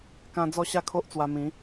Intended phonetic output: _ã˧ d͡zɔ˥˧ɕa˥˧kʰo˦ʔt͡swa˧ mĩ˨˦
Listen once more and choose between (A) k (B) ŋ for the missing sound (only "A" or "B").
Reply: A